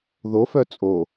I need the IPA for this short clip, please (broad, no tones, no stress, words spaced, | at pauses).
ðofœ t͡sʼo